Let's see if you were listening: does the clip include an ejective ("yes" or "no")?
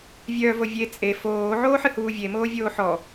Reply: yes